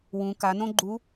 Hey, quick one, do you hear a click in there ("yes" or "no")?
yes